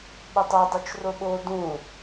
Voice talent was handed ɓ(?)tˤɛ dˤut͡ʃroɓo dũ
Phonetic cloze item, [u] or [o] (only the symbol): o